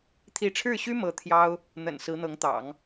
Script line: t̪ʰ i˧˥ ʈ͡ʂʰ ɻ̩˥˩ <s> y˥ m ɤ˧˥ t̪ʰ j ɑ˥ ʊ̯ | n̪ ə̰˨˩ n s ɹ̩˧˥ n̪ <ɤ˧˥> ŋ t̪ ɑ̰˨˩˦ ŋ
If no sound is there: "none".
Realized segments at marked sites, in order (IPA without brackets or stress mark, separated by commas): ɕ, ɤ˧˥